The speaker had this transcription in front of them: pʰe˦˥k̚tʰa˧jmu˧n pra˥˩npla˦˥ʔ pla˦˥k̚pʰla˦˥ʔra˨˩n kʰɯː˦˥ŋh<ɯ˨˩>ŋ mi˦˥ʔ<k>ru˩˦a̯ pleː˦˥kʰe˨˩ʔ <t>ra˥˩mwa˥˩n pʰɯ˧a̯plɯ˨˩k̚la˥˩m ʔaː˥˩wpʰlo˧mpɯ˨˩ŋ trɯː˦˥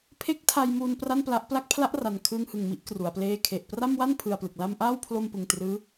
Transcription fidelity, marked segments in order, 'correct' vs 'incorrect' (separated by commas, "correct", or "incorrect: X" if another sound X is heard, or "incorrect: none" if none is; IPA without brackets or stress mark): correct, correct, incorrect: p